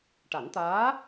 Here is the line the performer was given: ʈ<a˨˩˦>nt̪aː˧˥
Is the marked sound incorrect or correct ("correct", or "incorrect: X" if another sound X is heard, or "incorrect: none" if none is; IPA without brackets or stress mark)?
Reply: correct